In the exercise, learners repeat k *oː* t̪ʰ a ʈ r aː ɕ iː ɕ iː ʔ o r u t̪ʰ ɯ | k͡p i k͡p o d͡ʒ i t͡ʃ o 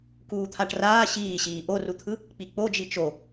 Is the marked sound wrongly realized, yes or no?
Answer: yes